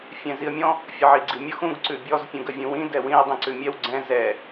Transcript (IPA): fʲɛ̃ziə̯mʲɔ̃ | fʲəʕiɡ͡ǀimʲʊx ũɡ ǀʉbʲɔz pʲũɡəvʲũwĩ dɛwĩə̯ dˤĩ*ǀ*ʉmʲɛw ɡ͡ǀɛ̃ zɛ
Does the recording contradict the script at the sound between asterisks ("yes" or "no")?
no